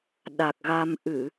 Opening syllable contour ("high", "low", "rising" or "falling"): low